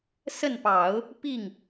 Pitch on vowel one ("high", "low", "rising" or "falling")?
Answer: falling